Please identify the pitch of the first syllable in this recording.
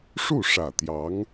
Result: falling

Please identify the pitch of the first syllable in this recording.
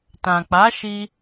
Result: low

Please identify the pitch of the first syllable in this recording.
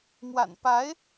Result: low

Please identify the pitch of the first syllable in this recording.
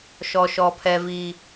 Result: high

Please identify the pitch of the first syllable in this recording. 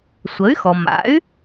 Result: rising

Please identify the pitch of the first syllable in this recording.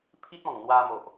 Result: high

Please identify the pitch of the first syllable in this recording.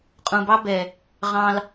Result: low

